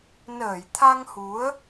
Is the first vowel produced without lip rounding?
yes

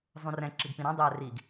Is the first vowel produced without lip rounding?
no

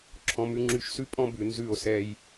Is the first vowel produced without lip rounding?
no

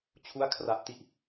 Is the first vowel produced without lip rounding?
no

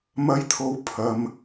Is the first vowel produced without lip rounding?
yes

